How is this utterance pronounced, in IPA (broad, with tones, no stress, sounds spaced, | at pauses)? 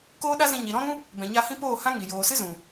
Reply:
k oː˦ ɗ a˦ z ĩ˧ ɲ i˨ ɾ ɔ̃˦ ɾ ũ˦ | b ɛ̃˨ ɲ a˧ h ĩ˦ p oː˦˨ h ã˦ ŋ i˨ j oː˨ s ɨ˦ z ũ˨